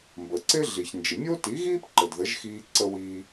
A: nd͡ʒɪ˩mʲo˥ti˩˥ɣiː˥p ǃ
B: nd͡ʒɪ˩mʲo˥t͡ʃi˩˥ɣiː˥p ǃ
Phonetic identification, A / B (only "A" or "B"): A